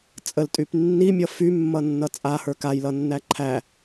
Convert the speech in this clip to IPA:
t͡sʼ ə l tʼ y p nː i mʲ ʌ f y mː ʌ nː ʌ t͡sʼ a h ə˞ k a j l ʌ nː æ ǃʰ æ

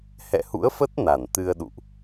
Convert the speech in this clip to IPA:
h ɛ̰˧˨ h ṵ˧˥ ə̯ f ə˦˥ t̚ n a˧˩ n t̪ ɨ˧ ə̯ ɗ ṵ˧˨ ʔ

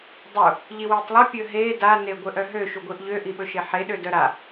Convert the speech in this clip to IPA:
dˤ u | ʎ i w i tˤ lˠ ɵ pʲ ɵ ɦ e d a n e ɡʷ ɘ ʔ œ ɦ ø ʃ u ɡʷ i ʔ ʎ ø ʔ i ɓ ɵ ʃ e ħ e ɗ ø d œ ɾ a

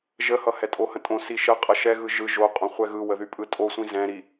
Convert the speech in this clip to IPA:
ʒ ə h ʌ h ɛ tʼ o h ə̃ tʼ õ s i ʃ ə qʼ ʌ ʃ ɛ ɣ ɯ ʒ ɯ ʒ o qʼ õ χʷ ɛ ɣ ɯ w ə ð y pʼ ɯ tʼ o sʷ ĩ z ɛ̃ ɾ i

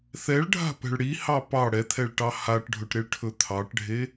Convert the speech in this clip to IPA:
θ ɛ ɭ ɖʱ a̤ p ɛ̤ ɭ ɽ i h ɑ p ɑ ɽ ɛ t̪ʰ ɛ ɭ ʈ ɑ h a ʈ ɖʱ ɵ ʈ ɾ e ɭ ʈʰ ɵ t̪ʰ ɑ ʈ ɖʱ e

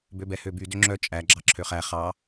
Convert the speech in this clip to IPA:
b ø b ɛ h ø b y d ø ŋ͡ǁ œ t͡ʃʼ æ ɡ͡ǁ ɑ ǁʰ ø χ æ χ ɑ

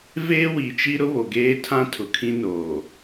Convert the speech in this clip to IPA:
v eː˦ w i˨ t͡ʃ i˦ ɾ ʊ˦ β o˨ ɡ eː˦ tʰ ã˦ tʰ ʊ˨ kʰ ĩ˦ n oː˨

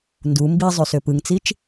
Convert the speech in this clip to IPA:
n d u m b i zˤ y s ø p ɯ ŋ t͡s i t͡ʃ

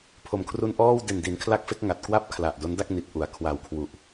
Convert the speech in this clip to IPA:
pʰ o˨˩ m kʰ r u˧ n ʔ ɔː˥˩ w d e˨˩ n d i˩˦ n kʰ l a˥˩ k̚ f e˥˩ k̚ ŋ a˨˩ t̚ k w a˥˩ p̚ kʰ l a˨˩ ʔ d o˦˥ n d a˥˩ k̚ n i˨˩ t̚ ʔ u˩˦ a̯ kʰ w a˨˩ w kʰ w u˨˩ ʔ

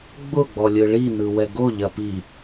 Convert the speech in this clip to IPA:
ɡ͡b ʊ ɡ͡b ɔ lʲ ɯ ɭ i n ɯ w ɛ ɡ o ʎ ɐ p i

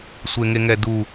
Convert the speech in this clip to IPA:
sʷ e ŋ e ŋ ɛ d u

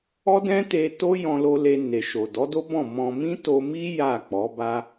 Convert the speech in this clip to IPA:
ɔ˦ d ɛ̃˦ t e˧ t o˦ j ɔ̃˧ l o˧ l e˧ n e˨ ʃ o˨ d ɔ˨˦ d o˦ b ɔ̃˦˨ m ɔ̃˧ m ĩ˦ t o˧ m i˦ j a˦˨ k͡p ɔ˨˦ b a˦

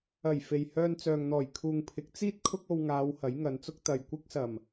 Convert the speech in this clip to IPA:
ɐ˨˩ j f e˨ j h œː˧ n t͡s œː˨ ŋ n̪ ɔː˨˩ j kʰ uː˨ ŋ pʰ ɪ˨˥ k̚ t͡s iː˥ t̚ kʰ ʊ˥ k̚ o˧ w ŋ aː˨˧ w h ɐ˨˥ j ŋ ɐ˨˧ n t͡s ʊ˥ k̚ t̪ ɐ˨ j kʷ ɪ˥ k̚ s ɐ˨˩ m

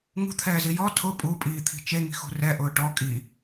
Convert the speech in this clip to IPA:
ŋ ṳ t̪ʰ ɛː z i j ɔ tʰ ʊ pʼ u pʼ iː t̪ʰ i̤ t͡ʃ e ŋ i̤ x ṳ r ɛ ʔ ʊː ʈ ɔ kʼ i

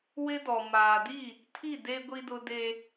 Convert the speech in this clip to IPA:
w ɪ˦ d ɔ˨ m aː˨ d i˦˨ | tʰ i˦˨ d e˦ ɡʷ i˦ d ʊ˦ d e˦

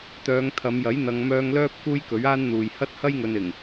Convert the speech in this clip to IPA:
t̪ œː˨˧ ŋ t̪ʰ ɐ˨˧ m j ɐ˨˥ j n̪ ɐ˨˧ ŋ m œː˧ ŋ l œː˥ p̚ k uː˥ j k ɵ˨˥ ɥ aː˥ n n̪ uː˨ j h ɐ˥ t̚ h ɐ˥ j ŋ ɵ˨ n ɪ˨˩ ŋ

